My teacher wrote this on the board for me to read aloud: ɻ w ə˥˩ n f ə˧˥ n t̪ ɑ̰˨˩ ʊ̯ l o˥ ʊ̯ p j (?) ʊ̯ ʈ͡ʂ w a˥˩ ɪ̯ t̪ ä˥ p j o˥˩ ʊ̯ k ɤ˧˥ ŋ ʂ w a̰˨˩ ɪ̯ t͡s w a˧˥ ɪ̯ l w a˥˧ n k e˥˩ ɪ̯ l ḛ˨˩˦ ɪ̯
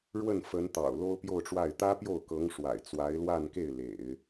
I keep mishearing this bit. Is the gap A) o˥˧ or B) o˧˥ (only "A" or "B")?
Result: A